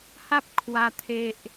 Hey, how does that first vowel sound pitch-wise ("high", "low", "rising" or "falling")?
high